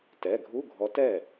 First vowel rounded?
no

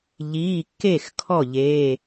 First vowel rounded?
no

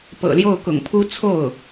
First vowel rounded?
no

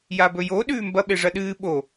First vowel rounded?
no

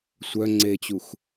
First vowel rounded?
yes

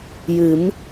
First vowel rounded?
no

